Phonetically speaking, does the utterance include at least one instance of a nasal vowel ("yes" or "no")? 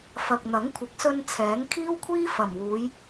no